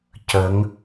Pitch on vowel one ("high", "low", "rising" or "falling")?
rising